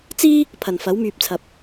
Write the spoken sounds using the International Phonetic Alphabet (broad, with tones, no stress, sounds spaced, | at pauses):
t͡s iː˥ | pʰ ɐ˨˩ n f ɐ˨˥ w m yː˨ p̚ t͡sʰ ɐ˨ p̚